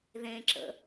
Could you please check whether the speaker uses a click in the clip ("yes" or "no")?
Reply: yes